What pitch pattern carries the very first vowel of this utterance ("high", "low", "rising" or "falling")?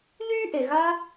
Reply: high